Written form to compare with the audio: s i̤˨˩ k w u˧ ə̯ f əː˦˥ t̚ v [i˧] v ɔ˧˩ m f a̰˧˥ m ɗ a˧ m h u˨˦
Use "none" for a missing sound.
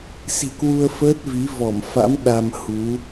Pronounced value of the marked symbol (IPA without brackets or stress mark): i˨˦